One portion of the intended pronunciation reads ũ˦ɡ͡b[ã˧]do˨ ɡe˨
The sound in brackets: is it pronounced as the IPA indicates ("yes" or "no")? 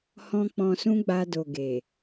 no